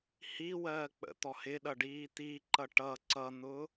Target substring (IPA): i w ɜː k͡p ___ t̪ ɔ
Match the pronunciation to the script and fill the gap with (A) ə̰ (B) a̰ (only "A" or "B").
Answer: A